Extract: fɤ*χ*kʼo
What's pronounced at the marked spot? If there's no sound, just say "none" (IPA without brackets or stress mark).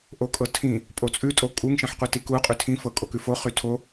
none